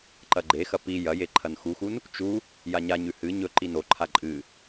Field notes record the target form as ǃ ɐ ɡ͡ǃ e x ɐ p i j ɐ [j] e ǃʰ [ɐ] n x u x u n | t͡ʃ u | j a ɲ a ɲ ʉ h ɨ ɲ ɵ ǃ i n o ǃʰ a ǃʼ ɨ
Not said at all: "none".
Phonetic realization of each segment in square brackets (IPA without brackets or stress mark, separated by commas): j, ɐ